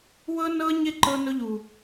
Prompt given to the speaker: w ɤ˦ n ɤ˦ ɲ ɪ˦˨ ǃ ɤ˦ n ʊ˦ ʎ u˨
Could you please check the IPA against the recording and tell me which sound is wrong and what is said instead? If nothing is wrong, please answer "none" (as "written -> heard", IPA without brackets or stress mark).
none